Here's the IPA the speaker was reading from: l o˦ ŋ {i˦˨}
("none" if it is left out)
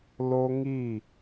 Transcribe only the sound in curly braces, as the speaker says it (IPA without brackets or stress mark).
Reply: i˦˨